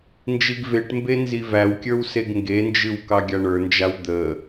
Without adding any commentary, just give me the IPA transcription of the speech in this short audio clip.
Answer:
nd͡ʒiɡveʈmbe nzivæwkʲə˞w seɡŋɡend͡ʒɨw kɑɡʲaɳə˞nd͡ʒaw d̪ə

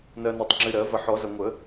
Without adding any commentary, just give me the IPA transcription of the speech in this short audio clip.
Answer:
nɜ˨ na˨tˤŋ͡ǁɨ˨ɾɜ˨˩˦ vɐ˨˩˦ħɔ˨˩˦ zɐ˨ŋʷə˨˩˦

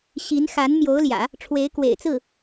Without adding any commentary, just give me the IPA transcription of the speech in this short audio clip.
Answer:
ɕi˧˥n xa˧˥n mjo˧˥ʊ̯ljä̰˨˩˦ | ʈ͡ʂʰwe˧˥ɪ̯kwḛ˨˩ɪ̯t͡sɹ̩˥˩

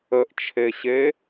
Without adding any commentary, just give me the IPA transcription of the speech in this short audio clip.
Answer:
əʔt͡ʃʰeɕe

